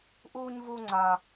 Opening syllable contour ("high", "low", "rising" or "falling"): high